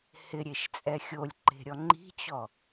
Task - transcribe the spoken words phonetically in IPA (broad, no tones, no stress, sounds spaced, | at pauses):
h ɪ ɾʲ e ʃ t͡sʼ ɛ xʲ o lʲ ǃ e̤ ɾʲ ɔ ŋ͡ǃ i̤ t͡ɕ ɔ